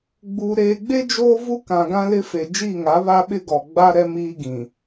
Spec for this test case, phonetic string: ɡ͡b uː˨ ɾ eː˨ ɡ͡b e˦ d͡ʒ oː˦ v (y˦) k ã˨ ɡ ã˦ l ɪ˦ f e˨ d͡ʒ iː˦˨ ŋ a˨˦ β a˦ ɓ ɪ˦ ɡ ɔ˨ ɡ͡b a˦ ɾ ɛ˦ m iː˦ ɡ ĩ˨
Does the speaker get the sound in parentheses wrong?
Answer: yes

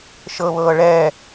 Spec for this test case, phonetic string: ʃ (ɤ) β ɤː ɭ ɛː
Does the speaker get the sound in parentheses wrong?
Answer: no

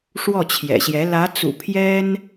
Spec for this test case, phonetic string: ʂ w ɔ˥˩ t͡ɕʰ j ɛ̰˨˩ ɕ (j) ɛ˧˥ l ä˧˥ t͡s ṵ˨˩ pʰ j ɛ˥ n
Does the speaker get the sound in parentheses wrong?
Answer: no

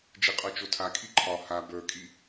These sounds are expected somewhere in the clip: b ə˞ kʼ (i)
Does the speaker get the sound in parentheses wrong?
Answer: no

